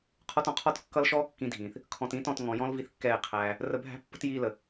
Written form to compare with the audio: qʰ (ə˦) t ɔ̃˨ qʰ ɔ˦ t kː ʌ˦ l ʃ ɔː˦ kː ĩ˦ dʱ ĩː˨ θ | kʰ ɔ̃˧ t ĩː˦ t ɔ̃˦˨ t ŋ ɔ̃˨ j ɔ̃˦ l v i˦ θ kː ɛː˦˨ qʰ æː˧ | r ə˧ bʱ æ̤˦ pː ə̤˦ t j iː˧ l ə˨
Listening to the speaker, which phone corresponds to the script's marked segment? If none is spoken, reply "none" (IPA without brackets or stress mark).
ɔ˦